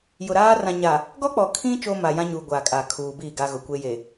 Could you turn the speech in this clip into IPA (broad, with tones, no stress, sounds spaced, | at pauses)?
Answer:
j ʊ˨ ɾ aː˦ r ã˨ ɲ a˨ | ɡ ɔ˦ k͡p ɔ˨ kʰ ĩ˦ t͡ʃ o˦ m a˨ j ã˦ ɲ uː˨ ɡʷ aː˨ kʼ a˨ kʰ uː˨ b iː˦˨ ɡ a˦ ɣ ʊ˨ kʷ e˦ j e˨